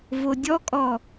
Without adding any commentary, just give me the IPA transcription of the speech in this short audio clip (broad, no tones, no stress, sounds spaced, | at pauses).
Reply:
v o dʲ ɔ kʼ ɔ